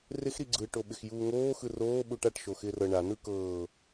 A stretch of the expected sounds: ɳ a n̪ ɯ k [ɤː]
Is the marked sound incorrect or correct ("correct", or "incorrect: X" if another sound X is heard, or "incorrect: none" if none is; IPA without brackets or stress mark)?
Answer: correct